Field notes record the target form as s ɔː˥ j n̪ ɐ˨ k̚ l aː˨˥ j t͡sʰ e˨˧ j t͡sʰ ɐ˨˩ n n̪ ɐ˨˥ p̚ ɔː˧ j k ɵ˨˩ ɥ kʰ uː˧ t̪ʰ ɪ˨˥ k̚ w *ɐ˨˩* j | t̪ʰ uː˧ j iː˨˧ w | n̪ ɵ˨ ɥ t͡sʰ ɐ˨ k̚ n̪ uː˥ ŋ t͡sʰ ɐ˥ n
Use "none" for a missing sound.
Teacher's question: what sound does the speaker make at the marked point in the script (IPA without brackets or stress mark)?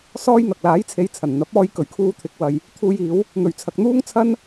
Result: ɐ˨